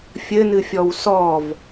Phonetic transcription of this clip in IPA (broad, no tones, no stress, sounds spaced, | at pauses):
fʲ ɘ n ɨ fʲ ɔ w s ɔ v